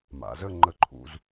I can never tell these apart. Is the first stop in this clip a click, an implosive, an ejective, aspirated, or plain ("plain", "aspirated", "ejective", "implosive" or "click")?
click